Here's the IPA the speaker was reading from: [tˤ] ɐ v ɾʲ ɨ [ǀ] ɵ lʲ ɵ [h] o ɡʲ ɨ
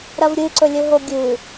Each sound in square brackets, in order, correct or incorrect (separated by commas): incorrect, correct, incorrect